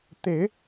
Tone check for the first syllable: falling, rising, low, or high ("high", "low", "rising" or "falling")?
low